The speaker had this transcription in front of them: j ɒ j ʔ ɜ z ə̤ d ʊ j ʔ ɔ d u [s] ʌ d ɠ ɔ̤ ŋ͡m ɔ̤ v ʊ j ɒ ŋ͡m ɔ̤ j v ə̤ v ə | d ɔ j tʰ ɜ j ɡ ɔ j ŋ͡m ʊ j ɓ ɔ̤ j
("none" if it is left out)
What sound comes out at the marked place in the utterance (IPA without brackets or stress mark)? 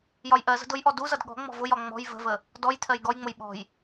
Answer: z